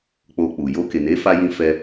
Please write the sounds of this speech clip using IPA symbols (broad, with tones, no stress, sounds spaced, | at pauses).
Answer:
k͡p o˧ k͡p u˨ j o˧ k e˨ n e˨˦ f a˧ j ĩ˧ f ɛ˧